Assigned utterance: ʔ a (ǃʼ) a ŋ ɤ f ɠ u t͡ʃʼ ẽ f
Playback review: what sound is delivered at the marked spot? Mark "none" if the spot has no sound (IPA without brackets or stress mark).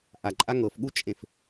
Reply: ǃʼ